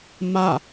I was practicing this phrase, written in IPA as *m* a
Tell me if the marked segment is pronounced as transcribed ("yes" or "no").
yes